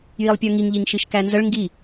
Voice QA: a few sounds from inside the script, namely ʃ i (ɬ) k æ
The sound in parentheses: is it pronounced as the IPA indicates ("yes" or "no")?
no